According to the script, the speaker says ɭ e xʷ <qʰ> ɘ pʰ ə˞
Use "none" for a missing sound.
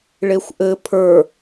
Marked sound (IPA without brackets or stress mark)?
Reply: ʔ